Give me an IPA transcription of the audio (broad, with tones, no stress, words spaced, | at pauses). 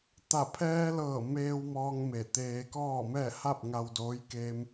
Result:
t̪a˧˩pʰɛː˧lɤː˧˩ meː˧w mɔː˧ŋ me˧˩t̪eː˧ kɔː˥˨ mɛː˥˨ ha˥˨p̚ŋa˧wdoː˧˥j ke˧m